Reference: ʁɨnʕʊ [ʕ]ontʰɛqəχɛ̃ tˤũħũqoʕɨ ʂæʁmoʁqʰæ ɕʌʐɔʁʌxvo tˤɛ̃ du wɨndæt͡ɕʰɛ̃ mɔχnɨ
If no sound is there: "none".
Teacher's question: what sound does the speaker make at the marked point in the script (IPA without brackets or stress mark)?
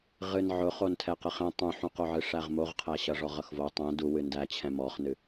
χ